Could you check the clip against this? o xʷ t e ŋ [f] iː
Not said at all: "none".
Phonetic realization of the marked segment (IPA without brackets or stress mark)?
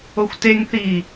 θ